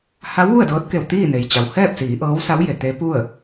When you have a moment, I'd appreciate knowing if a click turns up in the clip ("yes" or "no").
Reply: no